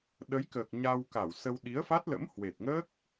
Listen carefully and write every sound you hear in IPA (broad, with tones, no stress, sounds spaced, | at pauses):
ɗ ə˨˦ j k əː˨˩ k̚ ɲ a˧ w k a˧˩ w s ə˧ w ɗ i˨˦ ə̯ f a˦˥ t̚ l ə̰˧˥ m h w e˨˩ t̚ ŋ əː˦˥ k̚